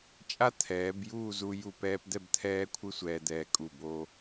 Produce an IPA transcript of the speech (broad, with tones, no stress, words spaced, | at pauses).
t͡ʃʼa˥t̪ʰɛː˩˧b juː˥˧zu˧ ju˧˩pɛː˧pd̪ɛ˥˧b t̪ʰɛː˥kʷʰɯ˥ sʷɛː˧d̪ɛː˧kʼu˧˩ bo˧